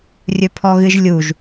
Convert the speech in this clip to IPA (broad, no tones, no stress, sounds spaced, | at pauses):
rʲ ɵ pʰ ɔ ɣ ɨ ʒ lʲ u ʒ